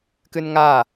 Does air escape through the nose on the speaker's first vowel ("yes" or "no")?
no